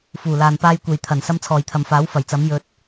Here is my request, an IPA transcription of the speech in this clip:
f uː˨˩ l aː˨ n p aː˧ j kʷ e˨ j t̪ʰ ɐ˨˩ n s ɐ˧ m t͡sʰ ɔː˨ j t̪ʰ ɐ˨ m f aː˨˥ w f ɐ˨˩ j t͡s ɐ˨˥ m j ɵ˧ t̚

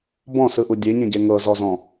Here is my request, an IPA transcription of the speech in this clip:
b ɔ̃ s ɯ ʔ u dʲ e ɲ ẽ ɟ e ŋ ɤ z ɔ z ɔ̃

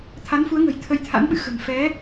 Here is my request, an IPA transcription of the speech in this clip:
t̪ʰ a˨˦ n f u˨˦ ə̯ ŋ ə̤˨˩ j t̪ʰ ə˧ j t̪ʰ a̰˧˥ n ɓ ɨ̰˧˨ x ə̤˨˩ n f ɛ˨˦

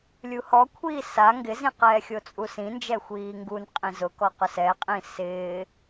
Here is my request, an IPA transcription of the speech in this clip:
lʲ u h ɔ kʷʰ iː s a ŋ ɡ ɪ z ĩ q ɛː xʲ o t͡sʼ u s ĩ n d͡ʒ ɛ xʷ iː ŋ ɡ u n qʼ ĩ z ʊ k ɔ q ʊ s ɛ qʼ ĩ s ɪː

